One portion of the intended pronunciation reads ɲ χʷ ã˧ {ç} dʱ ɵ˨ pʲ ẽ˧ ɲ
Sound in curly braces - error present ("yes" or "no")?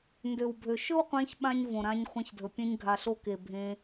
no